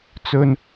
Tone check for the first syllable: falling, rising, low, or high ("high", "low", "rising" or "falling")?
high